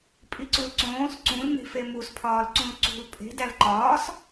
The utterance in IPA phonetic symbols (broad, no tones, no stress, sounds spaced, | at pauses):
pʼ i ǀ u l ǀ õː s ǀ ũ l n e̤ f e m u s pʰ ɒː l ǀ ũ l ǀ ṳ l pʼ e̤ d æ l ǃ ɒː s